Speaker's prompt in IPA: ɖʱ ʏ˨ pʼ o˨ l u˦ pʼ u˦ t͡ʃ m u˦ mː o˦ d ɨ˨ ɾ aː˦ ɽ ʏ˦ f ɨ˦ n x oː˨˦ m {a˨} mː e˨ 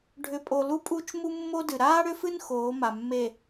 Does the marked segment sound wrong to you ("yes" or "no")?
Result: no